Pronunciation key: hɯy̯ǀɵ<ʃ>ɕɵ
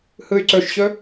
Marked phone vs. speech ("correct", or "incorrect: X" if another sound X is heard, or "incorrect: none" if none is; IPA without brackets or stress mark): correct